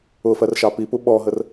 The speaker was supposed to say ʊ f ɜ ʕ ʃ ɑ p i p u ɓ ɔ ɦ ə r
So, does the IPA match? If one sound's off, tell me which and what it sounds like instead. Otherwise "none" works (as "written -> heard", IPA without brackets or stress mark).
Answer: ʕ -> r